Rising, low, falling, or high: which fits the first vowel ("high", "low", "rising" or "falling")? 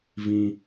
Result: low